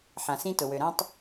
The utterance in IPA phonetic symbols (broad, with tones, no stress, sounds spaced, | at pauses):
ħ ã˩ s ĩ˧ t ʊ˩ w ø˩ ɾ ã˧ tˤ